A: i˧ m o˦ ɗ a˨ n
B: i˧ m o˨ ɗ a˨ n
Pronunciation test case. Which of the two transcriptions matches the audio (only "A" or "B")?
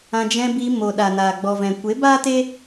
B